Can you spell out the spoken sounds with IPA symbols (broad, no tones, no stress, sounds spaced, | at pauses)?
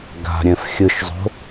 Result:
ɡ a̤ ɾʲ ɛ̃ f xʲ ɯ ʃ zˤ o̤